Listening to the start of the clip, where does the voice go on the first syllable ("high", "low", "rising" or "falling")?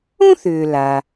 high